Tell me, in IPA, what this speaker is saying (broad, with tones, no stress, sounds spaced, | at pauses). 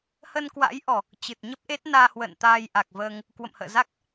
h ə˧ n k w a̰˧˥ j ʔ ɔ˨˩ | t͡ɕ ɨ˨˩ t̚ ɲ ə˦˥ p̚ ʔ e˦˥ t̚ n aː˧ h w ə̰ː˧˨ n t̪ aː˧ j ʔ a˨˩ k̚ v əː˧ ŋ | k w ə̰˧˨ m h ə̰ː˧˨ z a˦˥ k̚